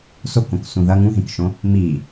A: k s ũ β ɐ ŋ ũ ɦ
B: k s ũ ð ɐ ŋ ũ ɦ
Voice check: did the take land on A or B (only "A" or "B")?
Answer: B